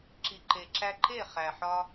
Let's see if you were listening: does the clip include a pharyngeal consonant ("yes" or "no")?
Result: yes